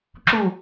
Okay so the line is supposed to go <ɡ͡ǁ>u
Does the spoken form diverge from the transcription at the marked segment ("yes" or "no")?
yes